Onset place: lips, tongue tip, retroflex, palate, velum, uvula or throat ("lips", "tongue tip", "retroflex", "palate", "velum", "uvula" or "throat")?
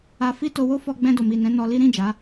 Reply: lips